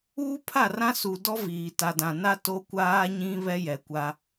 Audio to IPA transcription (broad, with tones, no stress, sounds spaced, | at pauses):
uː˦ pʰ a˦˨ r ã˦ s u˨ d ɔ˦ v iː˨ t a˨ d ã˨ n a˦ t o˦ kʷ aː˦ ɲ ĩ˦ β ɛ˦ j ɛ˨ kʷ a˦